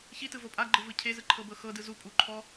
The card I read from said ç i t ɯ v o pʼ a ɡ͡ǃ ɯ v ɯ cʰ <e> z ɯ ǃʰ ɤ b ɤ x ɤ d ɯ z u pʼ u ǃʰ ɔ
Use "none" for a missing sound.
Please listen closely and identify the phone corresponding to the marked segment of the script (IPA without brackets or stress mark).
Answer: e